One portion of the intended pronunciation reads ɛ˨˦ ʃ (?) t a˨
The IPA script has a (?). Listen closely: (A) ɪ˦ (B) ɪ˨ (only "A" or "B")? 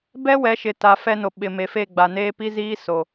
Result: B